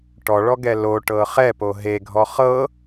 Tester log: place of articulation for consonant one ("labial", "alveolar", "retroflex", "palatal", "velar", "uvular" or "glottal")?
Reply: retroflex